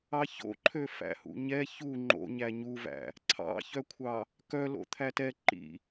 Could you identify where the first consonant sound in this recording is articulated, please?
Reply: palatal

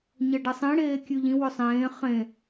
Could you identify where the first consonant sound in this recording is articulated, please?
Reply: palatal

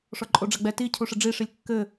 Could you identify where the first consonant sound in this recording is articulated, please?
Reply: retroflex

